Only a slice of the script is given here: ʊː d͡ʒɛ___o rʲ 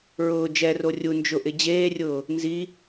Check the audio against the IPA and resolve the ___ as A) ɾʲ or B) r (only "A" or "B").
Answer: B